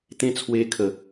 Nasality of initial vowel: nasal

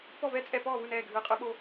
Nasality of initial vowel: oral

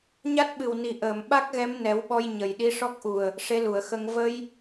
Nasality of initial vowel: oral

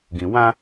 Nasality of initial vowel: nasal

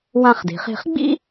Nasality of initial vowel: nasal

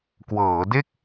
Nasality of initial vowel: oral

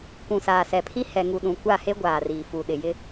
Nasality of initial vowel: nasal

